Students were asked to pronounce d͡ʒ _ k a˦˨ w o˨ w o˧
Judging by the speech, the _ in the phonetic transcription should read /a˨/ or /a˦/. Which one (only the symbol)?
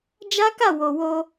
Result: a˦